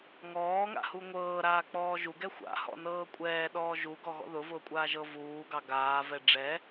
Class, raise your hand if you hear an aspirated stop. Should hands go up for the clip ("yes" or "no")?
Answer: no